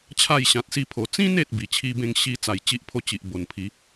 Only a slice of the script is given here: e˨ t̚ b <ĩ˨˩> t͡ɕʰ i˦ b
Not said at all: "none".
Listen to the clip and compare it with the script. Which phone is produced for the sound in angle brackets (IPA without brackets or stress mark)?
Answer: i˨˩